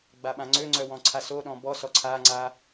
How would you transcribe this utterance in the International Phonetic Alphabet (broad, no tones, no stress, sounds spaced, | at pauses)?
ɡ͡b a ɓ ã ŋ͡ǀ ø ŋ͡ǀ œ w ɔ̃ ǀʰ a s o ɗ ɔ̃ b ɔ s ɔ ǀʰ a ŋ͡ǀ a